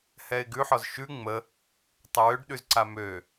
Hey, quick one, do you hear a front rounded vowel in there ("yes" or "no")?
yes